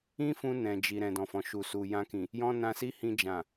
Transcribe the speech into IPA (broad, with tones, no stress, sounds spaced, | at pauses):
ĩ˦ f ũ˧ n ɛ̃˨ d͡ʒ i˨ ɾ ɛ̃˨ d ɔ̃˨ f ɔ̃˨ ʃ u˨ s u˨ j ã˧ k ĩ˨ | j ɔ̃˦ n ã˧ s i˦ h ĩ˧ d͡ʒ ã˨